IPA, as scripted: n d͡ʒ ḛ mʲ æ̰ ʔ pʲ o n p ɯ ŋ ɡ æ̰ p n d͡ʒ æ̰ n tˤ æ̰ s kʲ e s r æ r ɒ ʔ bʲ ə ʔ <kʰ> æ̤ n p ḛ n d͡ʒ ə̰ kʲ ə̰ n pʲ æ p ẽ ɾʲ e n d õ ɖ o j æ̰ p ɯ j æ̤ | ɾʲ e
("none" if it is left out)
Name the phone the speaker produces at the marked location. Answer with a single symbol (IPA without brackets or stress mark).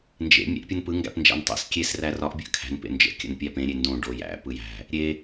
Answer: kʰ